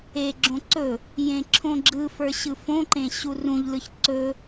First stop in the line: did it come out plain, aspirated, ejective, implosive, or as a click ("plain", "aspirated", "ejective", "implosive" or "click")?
click